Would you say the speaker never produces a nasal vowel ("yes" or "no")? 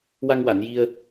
yes